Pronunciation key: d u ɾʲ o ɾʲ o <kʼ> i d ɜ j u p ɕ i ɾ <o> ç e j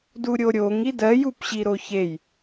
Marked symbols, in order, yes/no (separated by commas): no, yes